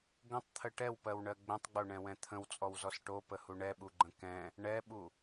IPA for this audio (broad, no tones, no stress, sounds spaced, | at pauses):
ɡ ə̃ tˤ t̪ʰ ə ʈ ɛ w p ɜ w ɳ ɜ ɡ͡b ɛ̃ tˤ ɡ͡b o ɳ ɛ̃ w ɛ̃ t̪ʰ ə̃ w t͡sʼ ɔ w z ɔ s ʈ o p ə h u ɳ ɛ ɓ u ɡ͡ǃ ə̃ k ɛ̃ | ɳ ɛ ɓ u